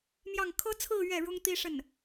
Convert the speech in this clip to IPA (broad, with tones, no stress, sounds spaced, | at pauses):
m j ɑ˥˩ ŋ kʰ ɤ˥ t͡sʰ ɹ̩˥˧ ɥ ɛ˥˩ ɻ ʊ˥ ŋ t̪ i˥ ʂ ə˥˩ n